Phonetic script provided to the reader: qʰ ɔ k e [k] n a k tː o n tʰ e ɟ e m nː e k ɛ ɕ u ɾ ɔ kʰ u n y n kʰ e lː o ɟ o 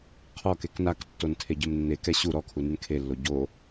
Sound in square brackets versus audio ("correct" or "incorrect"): correct